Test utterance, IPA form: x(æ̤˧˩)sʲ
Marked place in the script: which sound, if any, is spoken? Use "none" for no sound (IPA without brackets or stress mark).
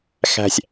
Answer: æ̤˧˩